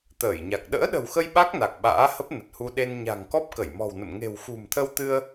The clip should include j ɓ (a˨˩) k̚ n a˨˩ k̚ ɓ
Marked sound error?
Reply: yes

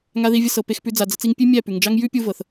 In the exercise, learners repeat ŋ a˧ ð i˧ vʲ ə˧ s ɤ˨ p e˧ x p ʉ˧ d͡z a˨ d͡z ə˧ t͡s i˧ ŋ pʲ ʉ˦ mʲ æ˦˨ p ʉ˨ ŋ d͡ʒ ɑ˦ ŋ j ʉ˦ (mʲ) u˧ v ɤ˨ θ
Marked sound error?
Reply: yes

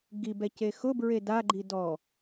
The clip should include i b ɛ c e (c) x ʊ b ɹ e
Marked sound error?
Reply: yes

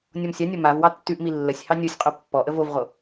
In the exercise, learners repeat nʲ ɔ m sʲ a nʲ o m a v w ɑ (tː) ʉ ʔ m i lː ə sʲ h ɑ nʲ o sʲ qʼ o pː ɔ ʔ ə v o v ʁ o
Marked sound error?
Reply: no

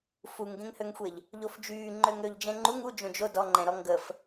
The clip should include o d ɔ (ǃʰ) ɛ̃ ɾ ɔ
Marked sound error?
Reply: yes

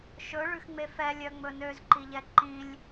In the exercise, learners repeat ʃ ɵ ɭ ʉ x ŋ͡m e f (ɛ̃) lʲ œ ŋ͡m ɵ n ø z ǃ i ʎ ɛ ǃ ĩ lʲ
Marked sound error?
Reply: yes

